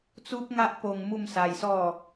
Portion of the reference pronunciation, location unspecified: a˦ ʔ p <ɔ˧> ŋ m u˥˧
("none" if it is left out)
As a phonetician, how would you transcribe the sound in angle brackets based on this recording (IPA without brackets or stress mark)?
o˧